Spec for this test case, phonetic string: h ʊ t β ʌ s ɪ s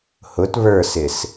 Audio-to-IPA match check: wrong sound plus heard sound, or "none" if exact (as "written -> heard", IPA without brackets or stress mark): ʌ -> ə˞